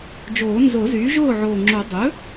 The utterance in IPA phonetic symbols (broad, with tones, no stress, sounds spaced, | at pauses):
d͡ʒ oː˨˩˦ n z o˨˩˦ z yː˩˥ ʒ oː˥˩ ʕ oː˨˩ ŋ͡ǁ o˨˩˦ dˤ ɵ˩˥